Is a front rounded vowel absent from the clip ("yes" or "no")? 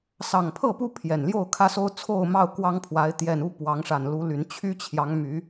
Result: no